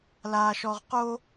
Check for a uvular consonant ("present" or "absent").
present